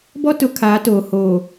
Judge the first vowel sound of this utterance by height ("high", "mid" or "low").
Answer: mid